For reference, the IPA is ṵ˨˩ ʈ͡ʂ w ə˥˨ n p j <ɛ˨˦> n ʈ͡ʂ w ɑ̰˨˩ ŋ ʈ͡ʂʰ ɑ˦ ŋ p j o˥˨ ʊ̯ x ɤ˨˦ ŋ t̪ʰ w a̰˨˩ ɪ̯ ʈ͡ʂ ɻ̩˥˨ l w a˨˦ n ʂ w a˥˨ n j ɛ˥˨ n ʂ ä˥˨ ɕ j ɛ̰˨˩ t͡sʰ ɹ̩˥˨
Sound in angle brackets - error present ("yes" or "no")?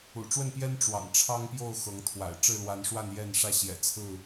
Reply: yes